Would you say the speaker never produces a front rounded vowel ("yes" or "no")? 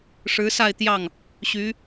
no